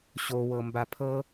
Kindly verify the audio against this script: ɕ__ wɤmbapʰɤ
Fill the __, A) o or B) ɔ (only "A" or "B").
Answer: A